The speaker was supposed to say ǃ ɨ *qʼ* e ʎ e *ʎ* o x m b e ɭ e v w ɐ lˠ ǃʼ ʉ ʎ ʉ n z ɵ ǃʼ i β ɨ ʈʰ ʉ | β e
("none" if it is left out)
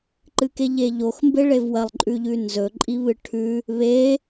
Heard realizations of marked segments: k, ʎ

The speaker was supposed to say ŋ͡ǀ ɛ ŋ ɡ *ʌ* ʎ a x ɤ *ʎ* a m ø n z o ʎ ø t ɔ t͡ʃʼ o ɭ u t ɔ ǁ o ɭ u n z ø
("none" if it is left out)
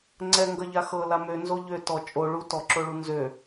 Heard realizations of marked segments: ʌ, l

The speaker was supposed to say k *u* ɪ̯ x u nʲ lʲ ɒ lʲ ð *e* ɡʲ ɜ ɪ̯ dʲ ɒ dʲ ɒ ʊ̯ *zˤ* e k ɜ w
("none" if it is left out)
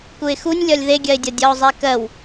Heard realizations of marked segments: u, e, zˤ

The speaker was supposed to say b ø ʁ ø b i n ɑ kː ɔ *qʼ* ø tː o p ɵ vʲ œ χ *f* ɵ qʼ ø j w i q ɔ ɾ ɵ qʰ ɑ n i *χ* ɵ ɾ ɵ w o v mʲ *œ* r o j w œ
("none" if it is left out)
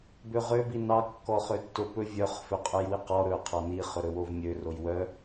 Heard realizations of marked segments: χ, f, χ, ø

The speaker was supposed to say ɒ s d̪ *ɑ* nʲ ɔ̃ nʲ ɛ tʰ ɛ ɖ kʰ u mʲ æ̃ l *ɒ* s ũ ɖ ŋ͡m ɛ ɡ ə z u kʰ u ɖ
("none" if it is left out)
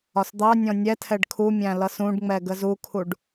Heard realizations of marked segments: ɑ, ʌ

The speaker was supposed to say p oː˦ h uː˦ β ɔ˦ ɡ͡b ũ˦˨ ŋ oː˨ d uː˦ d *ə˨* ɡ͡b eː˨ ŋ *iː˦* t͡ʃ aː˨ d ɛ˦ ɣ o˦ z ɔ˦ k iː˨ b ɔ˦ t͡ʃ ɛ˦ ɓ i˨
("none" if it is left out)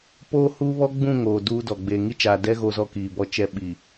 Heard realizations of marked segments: ɔ˨, i˦

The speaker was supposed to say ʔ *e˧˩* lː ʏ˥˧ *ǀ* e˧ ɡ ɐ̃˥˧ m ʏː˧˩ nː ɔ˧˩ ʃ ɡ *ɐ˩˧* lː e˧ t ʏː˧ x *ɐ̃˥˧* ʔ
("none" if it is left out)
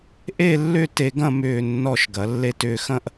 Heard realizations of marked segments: e˥˧, t, ɐ˩˧, ɐ̃˥˧

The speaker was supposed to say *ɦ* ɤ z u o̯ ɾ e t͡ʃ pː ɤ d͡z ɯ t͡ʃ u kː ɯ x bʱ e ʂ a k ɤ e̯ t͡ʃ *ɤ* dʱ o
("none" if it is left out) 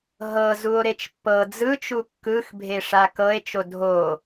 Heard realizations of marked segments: ɦ, o

